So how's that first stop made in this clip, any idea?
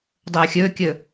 plain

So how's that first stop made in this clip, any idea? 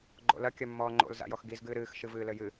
click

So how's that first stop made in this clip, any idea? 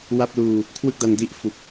plain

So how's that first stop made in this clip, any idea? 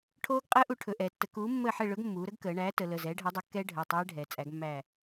aspirated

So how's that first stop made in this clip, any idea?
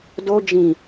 plain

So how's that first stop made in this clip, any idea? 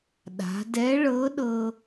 implosive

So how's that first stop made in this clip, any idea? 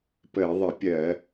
plain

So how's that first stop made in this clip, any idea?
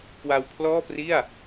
plain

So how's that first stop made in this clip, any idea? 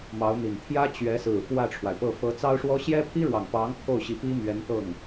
aspirated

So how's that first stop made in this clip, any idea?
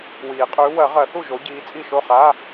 ejective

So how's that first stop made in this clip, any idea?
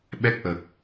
implosive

